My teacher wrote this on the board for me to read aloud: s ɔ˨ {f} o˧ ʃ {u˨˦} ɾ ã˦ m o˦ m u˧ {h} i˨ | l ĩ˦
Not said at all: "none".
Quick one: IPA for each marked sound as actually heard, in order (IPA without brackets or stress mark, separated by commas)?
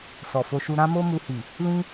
f, u˧, h